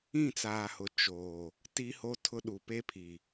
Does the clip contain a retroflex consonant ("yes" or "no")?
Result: no